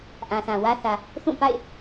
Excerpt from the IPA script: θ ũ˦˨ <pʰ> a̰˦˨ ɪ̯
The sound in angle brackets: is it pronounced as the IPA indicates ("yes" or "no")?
no